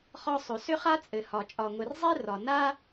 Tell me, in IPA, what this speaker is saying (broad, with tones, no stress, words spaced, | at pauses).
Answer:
χɒ˥sˤɵ˩ sʏ˥χa˥ t͡sʼɘ˩hɒ˩ t͡ʃʼɒ˩ŋʷɘ˩r zˤe˥rɒ˩ na˥